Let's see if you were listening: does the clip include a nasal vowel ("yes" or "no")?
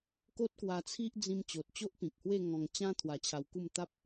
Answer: yes